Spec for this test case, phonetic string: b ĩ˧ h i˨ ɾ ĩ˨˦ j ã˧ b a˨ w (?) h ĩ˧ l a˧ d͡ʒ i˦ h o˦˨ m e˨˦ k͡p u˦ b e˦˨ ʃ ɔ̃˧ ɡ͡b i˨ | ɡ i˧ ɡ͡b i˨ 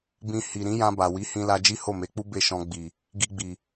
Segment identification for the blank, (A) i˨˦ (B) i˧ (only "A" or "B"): A